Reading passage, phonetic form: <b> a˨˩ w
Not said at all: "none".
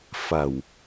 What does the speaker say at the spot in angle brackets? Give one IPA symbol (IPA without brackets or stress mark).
f